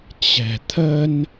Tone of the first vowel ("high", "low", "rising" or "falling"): low